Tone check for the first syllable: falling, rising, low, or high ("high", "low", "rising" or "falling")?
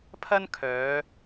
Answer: high